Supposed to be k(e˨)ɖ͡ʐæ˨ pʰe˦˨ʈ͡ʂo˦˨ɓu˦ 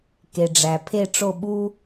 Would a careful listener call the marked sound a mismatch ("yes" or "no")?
no